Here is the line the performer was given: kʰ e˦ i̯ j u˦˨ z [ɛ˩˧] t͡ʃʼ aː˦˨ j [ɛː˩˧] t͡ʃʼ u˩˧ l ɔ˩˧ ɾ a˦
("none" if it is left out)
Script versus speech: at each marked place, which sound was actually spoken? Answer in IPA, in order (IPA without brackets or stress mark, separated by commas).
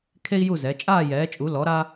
ɛ˩˧, ɛː˩˧